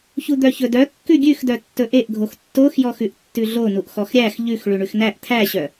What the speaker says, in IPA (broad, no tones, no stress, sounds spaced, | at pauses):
ç u d̪ œ ç ɵ d œ kː ʉ ɡʲ ʉ x d œ tː ɵ ʔ e ʔ ɡʱ o x tː o x j ɔ x ʉ ʔ tː ʉ ɮ o n u ʔ x ɔ x ɾʲ æ x ʎ ʉ x ɭ ʉ ɳ ʉ x n æ ʔ t̪ʰ æ ɕ œ